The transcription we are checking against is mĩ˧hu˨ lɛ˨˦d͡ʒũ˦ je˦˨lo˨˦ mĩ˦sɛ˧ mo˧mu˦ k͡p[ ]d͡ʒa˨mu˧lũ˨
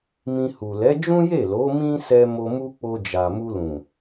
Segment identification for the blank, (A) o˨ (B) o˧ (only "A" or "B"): B